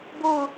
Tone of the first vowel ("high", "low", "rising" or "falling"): falling